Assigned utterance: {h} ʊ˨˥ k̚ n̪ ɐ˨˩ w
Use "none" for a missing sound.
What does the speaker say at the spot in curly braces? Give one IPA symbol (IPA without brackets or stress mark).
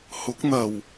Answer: h